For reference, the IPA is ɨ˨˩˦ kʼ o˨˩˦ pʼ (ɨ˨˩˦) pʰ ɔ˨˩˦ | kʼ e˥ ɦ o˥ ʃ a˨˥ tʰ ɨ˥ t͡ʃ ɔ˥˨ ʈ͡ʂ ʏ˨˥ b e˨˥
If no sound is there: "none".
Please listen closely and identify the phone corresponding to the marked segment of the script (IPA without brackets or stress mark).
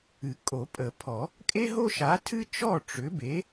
ə˨˩˦